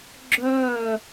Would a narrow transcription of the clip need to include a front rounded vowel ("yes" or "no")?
yes